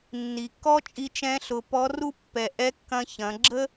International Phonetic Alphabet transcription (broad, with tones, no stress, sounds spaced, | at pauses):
nː i˩ kː ɔ˥ t͡ʃʼ i˧ t͡ʃ ɛ̃˧˥ ɬ ʊ˩˧ p ɔ˧˥ r u˥ pː ɛ˩ ʔ ɛ˧˥ kː ɐ̃˧ ç ɐ̃˩˧ ɡ͡ǁ ə˥